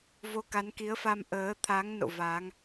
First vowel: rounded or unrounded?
rounded